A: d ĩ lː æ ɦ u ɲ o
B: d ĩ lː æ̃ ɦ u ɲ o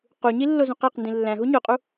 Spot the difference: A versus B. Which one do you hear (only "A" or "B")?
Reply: B